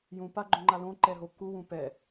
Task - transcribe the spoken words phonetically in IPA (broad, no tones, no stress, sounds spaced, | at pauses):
j ũ p a ɡ͡ǃ õ ŋ͡ǃ a l õ ǃ ɛ ɦ o kː u w ũ p ɛ